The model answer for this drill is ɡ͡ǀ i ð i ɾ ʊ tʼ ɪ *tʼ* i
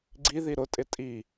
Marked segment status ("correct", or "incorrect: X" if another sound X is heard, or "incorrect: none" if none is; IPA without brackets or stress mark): correct